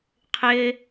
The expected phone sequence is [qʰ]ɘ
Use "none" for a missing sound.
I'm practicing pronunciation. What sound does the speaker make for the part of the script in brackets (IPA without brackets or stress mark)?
qʰ